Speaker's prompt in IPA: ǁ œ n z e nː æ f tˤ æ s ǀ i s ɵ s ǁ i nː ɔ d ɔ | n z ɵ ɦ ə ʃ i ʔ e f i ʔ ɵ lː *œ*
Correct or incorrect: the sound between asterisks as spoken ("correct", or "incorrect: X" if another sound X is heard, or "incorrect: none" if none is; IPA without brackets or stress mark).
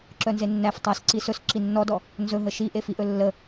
incorrect: ə